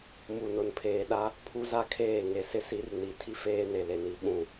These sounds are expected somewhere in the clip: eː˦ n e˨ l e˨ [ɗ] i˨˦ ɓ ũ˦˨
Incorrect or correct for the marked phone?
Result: incorrect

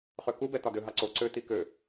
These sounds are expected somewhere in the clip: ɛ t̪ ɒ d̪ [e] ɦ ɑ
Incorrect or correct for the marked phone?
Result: incorrect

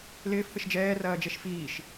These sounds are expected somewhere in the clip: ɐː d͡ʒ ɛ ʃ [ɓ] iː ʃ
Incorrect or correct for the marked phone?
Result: incorrect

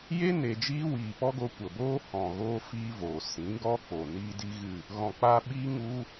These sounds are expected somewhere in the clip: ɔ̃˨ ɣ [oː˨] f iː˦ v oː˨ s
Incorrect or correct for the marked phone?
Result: incorrect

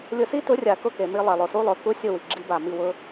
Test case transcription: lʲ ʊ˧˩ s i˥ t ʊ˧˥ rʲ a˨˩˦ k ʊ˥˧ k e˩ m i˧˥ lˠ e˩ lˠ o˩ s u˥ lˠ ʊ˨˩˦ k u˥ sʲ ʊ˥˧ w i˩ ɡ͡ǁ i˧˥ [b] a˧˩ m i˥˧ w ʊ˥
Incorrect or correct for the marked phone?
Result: correct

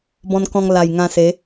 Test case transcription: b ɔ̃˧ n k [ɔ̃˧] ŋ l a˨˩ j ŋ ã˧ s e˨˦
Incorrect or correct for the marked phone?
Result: correct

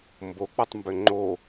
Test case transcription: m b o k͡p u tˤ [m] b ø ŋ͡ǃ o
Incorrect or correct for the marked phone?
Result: correct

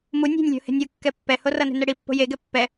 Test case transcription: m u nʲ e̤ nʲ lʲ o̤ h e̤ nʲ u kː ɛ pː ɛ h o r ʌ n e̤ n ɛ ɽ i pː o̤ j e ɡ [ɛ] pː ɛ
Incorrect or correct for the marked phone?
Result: correct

